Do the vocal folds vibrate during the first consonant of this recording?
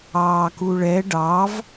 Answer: no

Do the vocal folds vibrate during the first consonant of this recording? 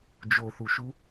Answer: yes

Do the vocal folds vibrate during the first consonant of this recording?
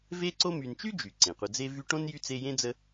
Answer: yes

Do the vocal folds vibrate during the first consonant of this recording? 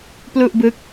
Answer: no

